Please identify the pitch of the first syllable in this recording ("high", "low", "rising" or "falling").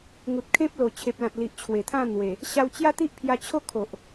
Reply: low